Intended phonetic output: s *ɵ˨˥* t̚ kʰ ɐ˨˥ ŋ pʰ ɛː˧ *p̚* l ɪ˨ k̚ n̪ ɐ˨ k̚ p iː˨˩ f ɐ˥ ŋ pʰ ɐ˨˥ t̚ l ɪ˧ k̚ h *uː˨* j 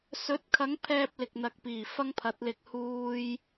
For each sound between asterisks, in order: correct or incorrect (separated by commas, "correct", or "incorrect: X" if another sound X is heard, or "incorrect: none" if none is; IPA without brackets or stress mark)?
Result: correct, correct, incorrect: uː˧